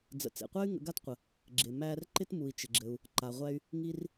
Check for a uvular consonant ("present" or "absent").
present